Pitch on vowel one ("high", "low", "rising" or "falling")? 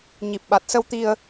low